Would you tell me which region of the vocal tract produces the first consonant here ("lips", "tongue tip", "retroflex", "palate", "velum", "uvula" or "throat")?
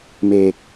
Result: lips